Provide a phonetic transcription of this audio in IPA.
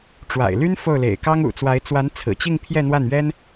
ʈ͡ʂwa̰˨˩ɪ̯ly˥n fo˥˩ʊ̯lḛ˨˩ɪ̯ kɑ˥ŋṵ˨˩t͡swa˧˥ɪ̯ t͡swa˧˥nt͡sʰɹ̩˨˩t͡ɕi˥˧ŋ pʰjɛ˥˧n̪wa˥˩nɥɛ˥n

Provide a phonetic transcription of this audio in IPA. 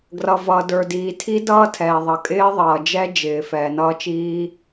ɡrʌ˩vʌ˩ də˞˩diː˩tʰi˦˥ dʌː˦˥tʰɛː˩ðˤʌ˩ kʼɪː˦˥ðˤʌː˩d͡ʒɛ˦˥d͡ʒɪː˩ fɛː˩nʌː˦˥t͡ʃiː˦˥

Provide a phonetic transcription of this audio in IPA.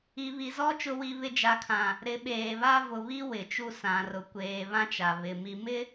i˨βi˨zɔ˦ t͡ʃʊ˦wi˦βɪ˦ d͡ʒa˨kʰã˨ | ɾɪ˨˦ɓeː˨βa˦ vʊ˨ βi˦ wɪ˨t͡ʃu˦ sã˨rʊ˨ kʷeː˨ βã˦t͡ʃa˨ βɪ˨ mi˨mɪ˦

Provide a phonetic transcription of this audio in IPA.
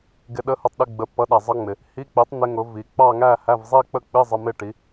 ɡɪ˧˥˧ɗə˦˥hʊ˧˥˧tˤɗɪ˧˥˧ ɡ͡bə˨˥pːʌ˨˥ɗæ˨ zˤʌ˦˥ŋ͡mɪ˨ | hi˧˥˧k͡pi˨˥tˤ n̪ɪ˦˥ŋʊ˨˥ vi˨ k͡pɑ˥˧ŋæ˥˧hæ˧˥˧v zˤi˥˧k͡pə˥˧k͡pi˧˥˧ zˤə˧˥˧mɪ˥˧ʈi˨˥

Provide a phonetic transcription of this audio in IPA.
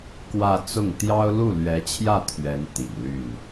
kwä˥˧ t͡sʊ˥˩ŋ t̪jɑ˥ʊ̯ lu˥˩lɥɛ˧˥t͡ɕʰjä˥˩ t̪ʰɥɛ˧˥n t̪ḭ˨˩n ly˥˩n

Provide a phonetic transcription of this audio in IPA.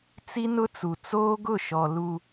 t͡si˦nʊ˦t͡su˨ t͡soː˦ɡʊ˦˨ʃɔ˨ lu˨

